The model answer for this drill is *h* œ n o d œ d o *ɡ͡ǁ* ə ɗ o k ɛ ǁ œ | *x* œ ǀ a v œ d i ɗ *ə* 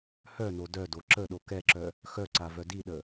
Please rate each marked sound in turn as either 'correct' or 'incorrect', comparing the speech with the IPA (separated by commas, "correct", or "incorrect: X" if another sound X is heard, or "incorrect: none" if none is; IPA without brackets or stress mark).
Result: correct, incorrect: ǁ, correct, correct